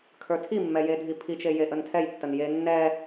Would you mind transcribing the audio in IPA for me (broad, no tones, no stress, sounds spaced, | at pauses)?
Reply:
kʰ ə˞ tʰ i mː ɛ j e dʱ i pʰ i t͡ʃ e j e ʔ ə n tʰ ɛ j tː ə n j e nː ɛ